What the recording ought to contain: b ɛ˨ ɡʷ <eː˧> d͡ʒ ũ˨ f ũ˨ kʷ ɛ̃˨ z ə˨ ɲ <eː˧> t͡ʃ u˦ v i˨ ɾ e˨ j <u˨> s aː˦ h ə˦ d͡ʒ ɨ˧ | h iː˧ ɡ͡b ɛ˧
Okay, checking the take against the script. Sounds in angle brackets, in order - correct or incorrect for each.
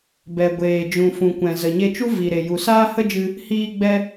incorrect: eː˨, incorrect: e˧, correct

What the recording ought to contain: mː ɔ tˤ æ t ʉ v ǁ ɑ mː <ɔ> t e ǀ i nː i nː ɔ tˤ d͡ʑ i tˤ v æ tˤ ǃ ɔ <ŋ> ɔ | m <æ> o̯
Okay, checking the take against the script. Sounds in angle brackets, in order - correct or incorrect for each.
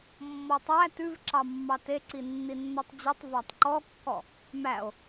incorrect: ɑ, incorrect: kː, correct

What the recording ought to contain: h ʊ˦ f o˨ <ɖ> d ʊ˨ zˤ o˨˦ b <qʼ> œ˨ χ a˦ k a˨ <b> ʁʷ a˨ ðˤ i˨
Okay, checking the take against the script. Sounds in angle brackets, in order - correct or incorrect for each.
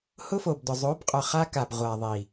incorrect: b, correct, correct

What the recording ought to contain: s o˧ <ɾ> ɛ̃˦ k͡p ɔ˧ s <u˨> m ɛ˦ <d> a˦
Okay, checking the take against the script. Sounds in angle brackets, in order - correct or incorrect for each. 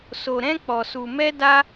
correct, incorrect: u˧, correct

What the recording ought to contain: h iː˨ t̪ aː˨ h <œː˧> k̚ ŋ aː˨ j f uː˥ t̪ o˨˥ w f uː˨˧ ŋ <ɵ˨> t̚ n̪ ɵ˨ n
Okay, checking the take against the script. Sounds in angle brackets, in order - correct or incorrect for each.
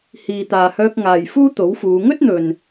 correct, incorrect: ɵ˥

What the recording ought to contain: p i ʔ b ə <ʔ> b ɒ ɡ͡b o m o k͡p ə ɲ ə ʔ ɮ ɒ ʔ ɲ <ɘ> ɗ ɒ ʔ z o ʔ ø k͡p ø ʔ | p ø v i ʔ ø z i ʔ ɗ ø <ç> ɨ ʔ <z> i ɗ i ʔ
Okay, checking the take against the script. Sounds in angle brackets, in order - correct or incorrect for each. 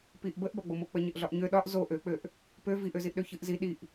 correct, incorrect: ø, correct, correct

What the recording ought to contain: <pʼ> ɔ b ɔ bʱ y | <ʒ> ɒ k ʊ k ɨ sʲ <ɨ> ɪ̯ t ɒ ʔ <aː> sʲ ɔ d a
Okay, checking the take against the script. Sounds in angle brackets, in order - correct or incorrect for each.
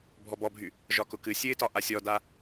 incorrect: bʱ, correct, correct, incorrect: a

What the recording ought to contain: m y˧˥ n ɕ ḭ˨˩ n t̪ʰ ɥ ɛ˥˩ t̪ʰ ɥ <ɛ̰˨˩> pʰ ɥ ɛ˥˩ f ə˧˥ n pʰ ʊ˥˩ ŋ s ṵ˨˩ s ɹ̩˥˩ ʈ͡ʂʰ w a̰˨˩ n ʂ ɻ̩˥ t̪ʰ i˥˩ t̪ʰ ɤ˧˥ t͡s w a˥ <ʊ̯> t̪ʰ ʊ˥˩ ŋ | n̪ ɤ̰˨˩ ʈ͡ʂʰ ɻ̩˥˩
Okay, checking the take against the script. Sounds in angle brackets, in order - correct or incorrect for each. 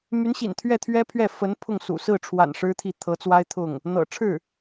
incorrect: ɛ˥, incorrect: ɪ̯

